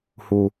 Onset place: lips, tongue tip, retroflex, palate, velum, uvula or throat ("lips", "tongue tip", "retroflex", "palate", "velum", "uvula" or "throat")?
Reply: throat